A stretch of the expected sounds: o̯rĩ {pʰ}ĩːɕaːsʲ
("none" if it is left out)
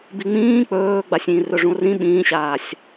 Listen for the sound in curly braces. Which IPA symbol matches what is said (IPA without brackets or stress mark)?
ɓ